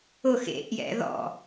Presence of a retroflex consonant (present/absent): absent